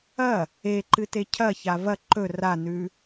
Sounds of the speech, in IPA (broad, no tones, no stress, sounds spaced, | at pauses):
ɐ | e ǃ ɨ t e cʰ ɐ ç a v ɐ ǃ ɵ r a n ʉ